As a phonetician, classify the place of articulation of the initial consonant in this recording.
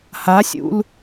glottal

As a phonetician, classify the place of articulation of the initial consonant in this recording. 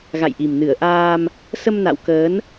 velar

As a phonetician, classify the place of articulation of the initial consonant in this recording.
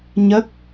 palatal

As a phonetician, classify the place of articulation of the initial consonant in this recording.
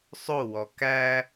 alveolar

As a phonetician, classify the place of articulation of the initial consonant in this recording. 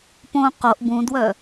labial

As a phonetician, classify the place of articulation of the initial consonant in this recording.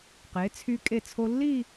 uvular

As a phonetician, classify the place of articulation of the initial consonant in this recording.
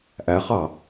glottal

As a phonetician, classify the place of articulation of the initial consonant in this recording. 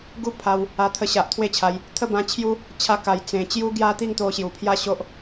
velar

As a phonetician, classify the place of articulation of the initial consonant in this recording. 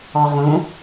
uvular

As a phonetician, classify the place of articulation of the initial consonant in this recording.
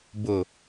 labial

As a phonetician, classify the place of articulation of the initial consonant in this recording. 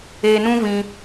alveolar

